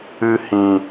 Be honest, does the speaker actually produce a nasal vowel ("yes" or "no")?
yes